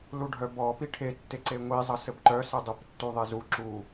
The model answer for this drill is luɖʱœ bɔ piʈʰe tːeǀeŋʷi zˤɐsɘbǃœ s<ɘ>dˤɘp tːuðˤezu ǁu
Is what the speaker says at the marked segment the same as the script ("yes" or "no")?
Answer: yes